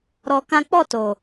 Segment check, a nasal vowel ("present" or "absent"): present